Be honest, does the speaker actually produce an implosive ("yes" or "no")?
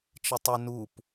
no